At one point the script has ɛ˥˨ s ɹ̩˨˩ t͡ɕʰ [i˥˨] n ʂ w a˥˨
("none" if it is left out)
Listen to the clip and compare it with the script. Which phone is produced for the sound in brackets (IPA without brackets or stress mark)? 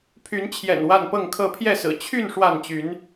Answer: y˥˨